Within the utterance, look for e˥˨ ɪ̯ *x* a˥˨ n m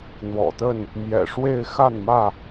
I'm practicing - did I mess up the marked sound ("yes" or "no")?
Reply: no